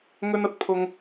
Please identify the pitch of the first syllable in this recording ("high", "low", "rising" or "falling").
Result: high